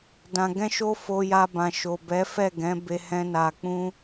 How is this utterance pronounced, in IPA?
d ã˧ ɡ ɛ̃˦ ʃ o˦ f o˧ j a˧ b ã˨ ʃ o˨ b ɛ˨˦ f ɛ˦˨ ɡ ɛ̃˨˦ b e˦ h ɛ̃˦ n a˧ k͡p ũ˦

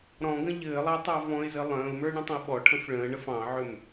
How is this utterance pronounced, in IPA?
ɾ ɔ̃ ɡ ə̃ ʎ ɘː lˠ ɑ tˤ ɑ v ɔ̃ ɪ̯ z ɘ lˠ ə̃ː ʊ̯ m ə˞ ɳ ə̃ tˤ ə̃ ɪ̯ ɓ ɔ ʈʰ ə̃ f ɭ ə̃ː ɳ ə f ɑ̃ ʕ ʏ m

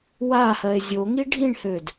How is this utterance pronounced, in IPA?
w a h ɜ e̯ zʲ o ŋ i ɖʱ ĩ ɳ h ø d

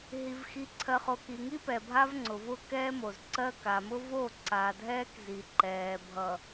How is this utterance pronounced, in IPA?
ɦ i˨ v x i˨ ǀʰ ɜ˨ χ o˨ k i˨ ŋ i˦ p ɛ˨ bʱ a˦ v ŋ͡ǀ ʊ˨ v ʊ˦ k ɛː˦ m o˨ z ǀ ɜ˦ k a˨ m ʊ˦ v o˦˨ ǀ a˨ dʱ ɛː˦ k z i˨ ǃ ɛː˨ bʱ ʌ˨

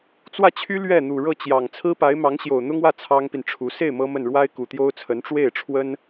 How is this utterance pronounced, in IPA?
t͡s w ä˥˩ t͡ɕʰ y˥ l ɥ ɛ˥˩ n̪ u˨˩ ɻ ɤ˥˩ t͡ɕ j ɑ˨˩ ŋ t͡sʰ ɹ̩˥ p a˧˥ ɪ̯ m ɑ˧˥ ŋ ɕ j o˨˩ ʊ̯ n̪ ʊ˥ ŋ w ä˥˩ t͡sʰ ɑ˥ ŋ p i˨ n ʈ͡ʂʰ u˧˥ s e˥˩ ɪ̯ m ɤ˥ m ə˥˩ n ɻ w a˥ ɪ̯ k u˨˩ t̪ j o˥ ʊ̯ t͡sʰ ə˧˥ n ʈ͡ʂ w e˥˩ ɪ̯ ʈ͡ʂʰ w ə˥ n

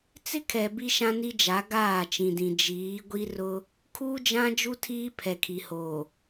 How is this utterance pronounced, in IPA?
t͡s ɪ˦ kʰ ɛ˨ b i˦ ʃ ã˦ n i˦ d͡ʒ a˨˦ ɡ aː˦˨ t͡ʃ ĩ˨ d ĩ˨ d͡ʒ iː˨˦ ɡʷ i˦ r ʊ˦ | kʰ uː˦ d͡ʒ ã˦ d͡ʒ u˦ tʰ iː˦ pʰ ɛ˨ kʰ i˨ h oː˨

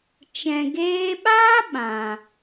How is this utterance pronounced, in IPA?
t͡ʃ ɛ̃˨ ɡ eː˧ ɓ aː˦ ɓ ã˨

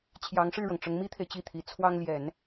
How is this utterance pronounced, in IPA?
t͡ɕʰ j ɑ˧˥ ŋ ʂ ɻ̩˥˩ ɻ ɤ˩ ŋ ʈ͡ʂ ʊ˧˥ ŋ m i˥ t̪ʰ e˨ ɪ̯ t͡ɕ i˥˩ t̪ʰ i˧˥ t͡sʰ w ɑ˥ ŋ l j ɛ˨˩˦ n

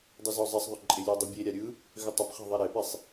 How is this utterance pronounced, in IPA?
dˤ ɯ z ɔ zˤ ɛ sˤ ðˤ ʏ ǃʼ ɪ lʲ ɯ dˤ ʊ bʲ e ɾʲ a ɾʲ ɯ | ɣ ʏ tˤ ʏ p χ ɛ̤ ðˤ ɛ ɾ e p i sˤ

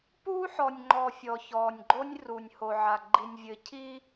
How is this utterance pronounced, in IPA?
p uː˦ ħ ɔ˨ nʲ ŋ͡ǃ ɔː˨ fʲ ɔ˨ ç ɔː˨ nʲ ɡ͡ǃ o˦ nʲ r u˨ nʲ h o˨ ʕ a˨ ɡ͡ǃ i˨ nʲ vʲ ɘ˨ cʰ i˦

